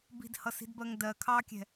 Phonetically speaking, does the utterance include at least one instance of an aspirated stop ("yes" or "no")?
yes